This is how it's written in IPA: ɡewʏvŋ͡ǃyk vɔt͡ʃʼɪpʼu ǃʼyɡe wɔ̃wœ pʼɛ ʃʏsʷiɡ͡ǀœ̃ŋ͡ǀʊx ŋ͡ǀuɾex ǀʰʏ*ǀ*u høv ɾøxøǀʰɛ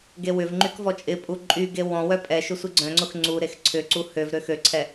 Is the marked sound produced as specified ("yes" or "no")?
yes